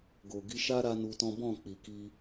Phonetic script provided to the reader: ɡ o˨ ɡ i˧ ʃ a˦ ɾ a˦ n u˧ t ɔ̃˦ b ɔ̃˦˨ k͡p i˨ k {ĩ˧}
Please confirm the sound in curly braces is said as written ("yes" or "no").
no